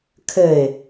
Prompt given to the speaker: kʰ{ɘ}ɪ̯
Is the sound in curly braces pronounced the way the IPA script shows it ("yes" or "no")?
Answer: yes